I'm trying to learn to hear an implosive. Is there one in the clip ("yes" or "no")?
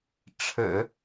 no